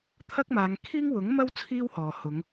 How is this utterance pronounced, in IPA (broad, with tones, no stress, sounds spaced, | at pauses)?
t̪ʰ ɐ˥ k̚ m aː˨˧ ŋ kʰ iː˥ ŋ w ʊ˨˥ ŋ m ɐ˥ w t͡sʰ iː˥ w h ɔː˨ h ʊ˨˧ ŋ